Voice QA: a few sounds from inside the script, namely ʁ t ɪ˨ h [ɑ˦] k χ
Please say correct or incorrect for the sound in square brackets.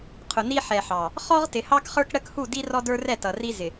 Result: correct